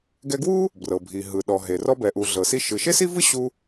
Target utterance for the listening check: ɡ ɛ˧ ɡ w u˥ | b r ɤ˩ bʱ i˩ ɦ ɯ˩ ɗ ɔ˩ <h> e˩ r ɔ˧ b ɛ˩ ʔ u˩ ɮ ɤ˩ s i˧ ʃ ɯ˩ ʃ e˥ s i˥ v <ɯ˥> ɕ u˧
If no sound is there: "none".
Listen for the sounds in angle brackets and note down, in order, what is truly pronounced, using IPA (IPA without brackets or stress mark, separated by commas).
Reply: ɦ, ɯ˥